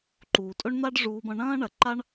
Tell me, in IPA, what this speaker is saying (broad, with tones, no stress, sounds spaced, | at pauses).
ǃ uː˨ tʼ ɵ˦ ɳ n̪ a˦ ɖ ʐ uː˧ b ɐ̃˧ ɳ ɐ̃ː˦ ɳ ɐ˨ ǃ a˦ ɳ